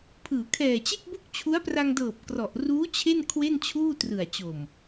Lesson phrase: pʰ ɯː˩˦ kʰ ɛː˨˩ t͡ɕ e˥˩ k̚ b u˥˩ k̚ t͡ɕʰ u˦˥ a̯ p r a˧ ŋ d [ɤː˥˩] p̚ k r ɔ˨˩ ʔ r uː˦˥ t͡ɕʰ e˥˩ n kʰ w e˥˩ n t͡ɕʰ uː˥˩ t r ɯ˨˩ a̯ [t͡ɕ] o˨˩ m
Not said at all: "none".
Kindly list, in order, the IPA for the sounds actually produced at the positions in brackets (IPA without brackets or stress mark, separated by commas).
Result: ɤː˨˩, t͡ɕ